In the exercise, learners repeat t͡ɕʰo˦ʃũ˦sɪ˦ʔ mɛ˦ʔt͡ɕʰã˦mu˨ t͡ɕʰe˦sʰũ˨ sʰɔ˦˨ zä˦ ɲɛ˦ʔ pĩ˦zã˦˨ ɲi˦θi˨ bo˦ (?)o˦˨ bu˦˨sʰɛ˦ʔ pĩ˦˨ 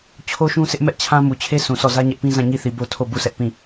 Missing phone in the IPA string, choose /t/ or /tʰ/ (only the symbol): tʰ